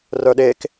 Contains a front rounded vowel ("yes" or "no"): yes